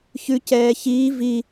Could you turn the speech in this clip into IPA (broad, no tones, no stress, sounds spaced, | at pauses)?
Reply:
ç ʉ c ɛː ç iː v i